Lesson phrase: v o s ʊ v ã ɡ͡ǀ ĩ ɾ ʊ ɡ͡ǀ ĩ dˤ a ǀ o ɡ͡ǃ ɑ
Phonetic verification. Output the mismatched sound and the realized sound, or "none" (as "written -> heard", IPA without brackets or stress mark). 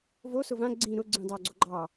ǀ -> ɡ͡ǀ